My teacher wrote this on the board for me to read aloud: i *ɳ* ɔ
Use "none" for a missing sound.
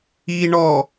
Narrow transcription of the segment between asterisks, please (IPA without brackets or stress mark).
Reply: ɳ